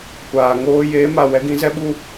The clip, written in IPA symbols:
kʷ aː˨ ŋ oː˧ j eː˨˦ m a˨ w ɛ˦ ɡ ĩ˦ z ɛ˦ ɓ u˦

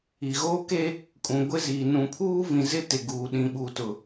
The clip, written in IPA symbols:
i˨ ɣ oː˦ k e˦ | kʼ ũ˨ ɡʷ ɪ˦ z i˨ n ũ˨ pʰ uː˦ v ĩ˨ z ɪ˦ t ɪ˨ ɡ uː˨ ɗ ĩ˨ ɓ u˨ t ʊ˨

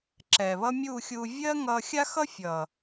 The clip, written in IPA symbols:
ǁ ɛː˨ β ʌ˦ mʲ uː˦˨ xʲ uː˧ vʲ ɜː˦ ŋ ʌː˧ xʲ a˦ x ʌ˦ fʲ ʌ˨

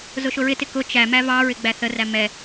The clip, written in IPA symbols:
z ʊ ʃ ʊ ɹ ɪ t ɪ k ʊ t͡ʃ æ m æ v ɑ ɹ ɪ ɡ͡b æ θ ə r æ m ɛ

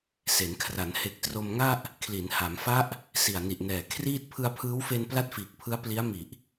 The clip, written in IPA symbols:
s e˩˦ n kʰ r a˩˦ n h e˨˩ k̚ t r o˧ m ŋ a˥˩ ʔ | kʰ l i˩˦ n h a˩˦ m f a˦˥ ʔ | s i˨˩ a̯ n i˨˩ ʔ n ɛː˨˩ kʰ r iː˥˩ t̚ pʰ ɯ˧ a̯ pʰ ɯː˦˥ w f e˧ n p l a˥˩ t̚ f iː˨˩ k̚ pʰ ɯ˦˥ a̯ p l i˦˥ a̯ m i˨˩ ʔ

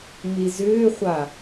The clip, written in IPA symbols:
m i z ʏː χʷ a

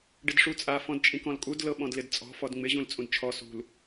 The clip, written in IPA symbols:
ɖ ɪ d ʂ u t͡sʼ a f ɔ̃ d t͡ʃʼ ĩ k ɔ̃ l kʼ u d l ɤ ɓ ɔ̃ d l ɪ d t͡sʼ ɔ̤ f ɔ d ŋ͡m ɪ ʑ ũ l t͡sʼ ũ d t͡ʃʰ ɔ s ṳ l

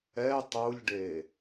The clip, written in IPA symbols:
ɛ tˤ u lʲ ɖ e

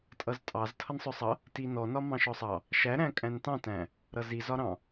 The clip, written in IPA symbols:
tʼ ʌ z tʼ ɑ z tʰ ʌ n sˤ ʊ sˤ ʌ | t i n ɔ n ɒ m ɑ̃ ʃ ɔ sˤ ɑ | ʃ æ ɾ æ̃ kʼ æ̃ n t ɑ̃ t æ̃ | ɾ ʌ z i z ɒ ɾ ɑ̃

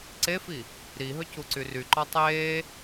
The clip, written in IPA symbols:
ǀ e f i | ɾ i ɦ ɵ c u ǀ y r y ǃ ɔ tˤ eː

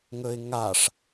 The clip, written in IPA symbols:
ŋ ɵ ɪ̯ ŋ a ʂ

